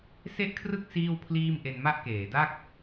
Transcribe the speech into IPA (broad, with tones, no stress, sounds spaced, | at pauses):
s e˥˩ ʔ kʰ r ɯ˥˩ k̚ s iː˥˩ w pʰ l iː˥˩ m ʔ e˧ n m a˥˩ ʔ k eː˩˦ d a˥˩ k̚